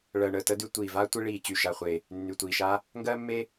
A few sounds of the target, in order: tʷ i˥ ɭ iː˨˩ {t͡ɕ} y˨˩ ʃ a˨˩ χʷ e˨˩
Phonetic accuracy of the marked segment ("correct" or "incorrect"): correct